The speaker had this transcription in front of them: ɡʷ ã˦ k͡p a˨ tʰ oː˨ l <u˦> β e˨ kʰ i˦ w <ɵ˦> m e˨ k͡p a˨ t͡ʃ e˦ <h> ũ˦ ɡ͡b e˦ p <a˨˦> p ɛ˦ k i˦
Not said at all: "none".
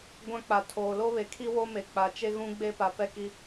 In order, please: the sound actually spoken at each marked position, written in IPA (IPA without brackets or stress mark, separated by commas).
o˦, o˦, ɣ, a˨˦